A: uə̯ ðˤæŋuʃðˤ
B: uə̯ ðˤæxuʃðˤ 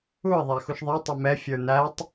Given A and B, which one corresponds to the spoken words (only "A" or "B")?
B